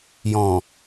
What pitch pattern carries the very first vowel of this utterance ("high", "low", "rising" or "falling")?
low